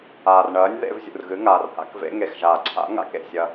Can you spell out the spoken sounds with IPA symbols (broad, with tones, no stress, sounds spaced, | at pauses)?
aː˩ r ɳ ɐː˩˧ nʲ ð ḛ˩˧ v zʲ ṵ˩ r ɣ ɨ˩˧ ŋ aː˩ r h a̰˩˧ k v ḛ˩˧ ŋ e˩ x ʒ aː˩ ǀʰ a̰˩˧ ŋ a̰˩ k ḛ˩ sʲ ɐ˩